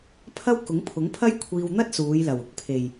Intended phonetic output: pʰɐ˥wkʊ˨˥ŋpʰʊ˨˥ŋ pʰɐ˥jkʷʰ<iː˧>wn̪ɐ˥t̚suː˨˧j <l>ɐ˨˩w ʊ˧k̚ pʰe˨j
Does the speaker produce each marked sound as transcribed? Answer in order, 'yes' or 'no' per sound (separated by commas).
yes, yes